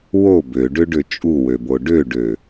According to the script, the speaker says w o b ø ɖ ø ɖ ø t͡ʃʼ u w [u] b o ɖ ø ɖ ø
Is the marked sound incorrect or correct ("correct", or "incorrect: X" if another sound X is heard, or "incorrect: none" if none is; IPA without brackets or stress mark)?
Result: incorrect: ø